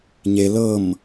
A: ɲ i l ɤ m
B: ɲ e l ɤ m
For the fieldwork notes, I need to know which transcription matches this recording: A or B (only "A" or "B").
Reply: B